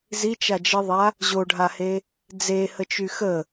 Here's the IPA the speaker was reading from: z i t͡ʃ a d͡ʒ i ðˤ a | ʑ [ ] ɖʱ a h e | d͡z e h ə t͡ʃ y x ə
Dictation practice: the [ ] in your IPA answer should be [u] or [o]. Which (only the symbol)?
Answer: o